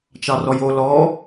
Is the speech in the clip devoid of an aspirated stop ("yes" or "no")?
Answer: yes